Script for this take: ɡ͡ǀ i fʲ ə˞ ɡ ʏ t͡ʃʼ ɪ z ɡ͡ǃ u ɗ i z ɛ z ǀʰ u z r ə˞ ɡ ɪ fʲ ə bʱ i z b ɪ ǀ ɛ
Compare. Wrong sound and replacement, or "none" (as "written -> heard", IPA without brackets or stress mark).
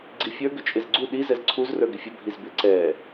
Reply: ɡ͡ǃ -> ɡ͡ǀ